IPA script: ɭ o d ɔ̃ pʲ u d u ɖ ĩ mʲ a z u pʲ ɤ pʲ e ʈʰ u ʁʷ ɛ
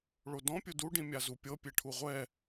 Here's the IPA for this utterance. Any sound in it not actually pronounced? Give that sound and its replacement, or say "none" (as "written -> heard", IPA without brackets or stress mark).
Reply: none